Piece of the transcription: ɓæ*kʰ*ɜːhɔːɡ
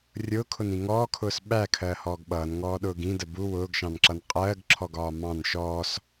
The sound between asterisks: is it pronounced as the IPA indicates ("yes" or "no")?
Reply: yes